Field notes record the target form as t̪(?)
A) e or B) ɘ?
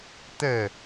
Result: B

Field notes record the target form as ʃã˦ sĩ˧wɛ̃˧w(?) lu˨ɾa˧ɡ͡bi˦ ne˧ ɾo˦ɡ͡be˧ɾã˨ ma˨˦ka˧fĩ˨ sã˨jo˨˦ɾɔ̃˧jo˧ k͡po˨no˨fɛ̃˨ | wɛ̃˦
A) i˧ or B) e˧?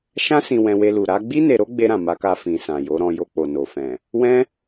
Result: B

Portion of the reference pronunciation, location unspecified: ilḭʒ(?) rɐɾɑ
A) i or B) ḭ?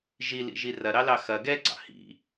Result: A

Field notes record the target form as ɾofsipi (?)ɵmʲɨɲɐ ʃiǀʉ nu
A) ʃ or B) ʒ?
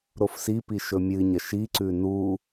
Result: A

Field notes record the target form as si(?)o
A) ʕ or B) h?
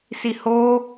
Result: B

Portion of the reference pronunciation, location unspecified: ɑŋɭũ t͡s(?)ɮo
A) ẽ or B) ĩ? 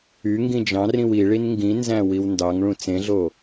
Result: A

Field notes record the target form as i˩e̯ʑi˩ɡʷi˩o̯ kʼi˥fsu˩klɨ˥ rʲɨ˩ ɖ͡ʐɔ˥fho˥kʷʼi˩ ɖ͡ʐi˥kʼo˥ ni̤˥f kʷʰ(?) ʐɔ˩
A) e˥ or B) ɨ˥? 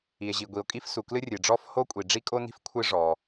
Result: B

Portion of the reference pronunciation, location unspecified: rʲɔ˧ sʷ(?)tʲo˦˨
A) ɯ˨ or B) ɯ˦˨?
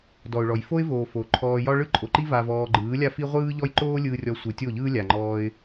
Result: A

